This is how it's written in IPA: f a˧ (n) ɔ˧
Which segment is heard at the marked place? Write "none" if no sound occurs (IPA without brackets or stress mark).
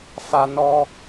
n